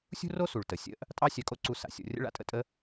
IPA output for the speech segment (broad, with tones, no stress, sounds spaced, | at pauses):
sʲ ṳ˥ r o˥ s u˩ ɭ t ə˩ sʲ ə̰˥ ʔ | tʼ ɑ˥ sʲ œ˧ kʼ o˥ ǀ u˧ s a̰˩ sʲ o̰˧ rʲ ə̰˥ ɭ a̰˥ tʼ ə̰˥ tʼ ə˥